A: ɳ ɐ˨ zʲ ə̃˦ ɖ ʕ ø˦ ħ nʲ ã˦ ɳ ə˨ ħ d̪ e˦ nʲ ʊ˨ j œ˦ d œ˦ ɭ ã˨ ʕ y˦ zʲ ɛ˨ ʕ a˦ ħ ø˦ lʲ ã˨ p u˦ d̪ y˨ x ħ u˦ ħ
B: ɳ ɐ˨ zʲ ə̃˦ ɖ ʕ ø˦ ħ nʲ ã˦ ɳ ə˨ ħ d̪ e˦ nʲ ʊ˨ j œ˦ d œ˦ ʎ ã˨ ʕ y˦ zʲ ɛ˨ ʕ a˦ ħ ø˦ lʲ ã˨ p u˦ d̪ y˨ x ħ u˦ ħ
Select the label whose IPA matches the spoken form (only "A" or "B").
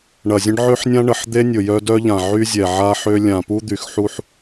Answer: B